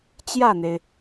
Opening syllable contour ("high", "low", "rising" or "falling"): falling